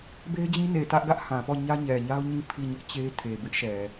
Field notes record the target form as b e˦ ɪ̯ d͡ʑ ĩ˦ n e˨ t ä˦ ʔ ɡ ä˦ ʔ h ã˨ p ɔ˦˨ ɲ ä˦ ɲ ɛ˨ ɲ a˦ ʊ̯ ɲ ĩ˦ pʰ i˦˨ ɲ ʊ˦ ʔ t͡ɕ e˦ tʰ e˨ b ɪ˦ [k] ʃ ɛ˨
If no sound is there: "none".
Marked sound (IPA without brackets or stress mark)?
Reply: ʔ